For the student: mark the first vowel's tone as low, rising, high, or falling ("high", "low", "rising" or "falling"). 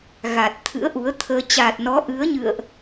low